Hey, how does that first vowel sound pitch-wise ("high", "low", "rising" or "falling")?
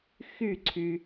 falling